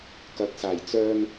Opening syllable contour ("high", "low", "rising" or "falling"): rising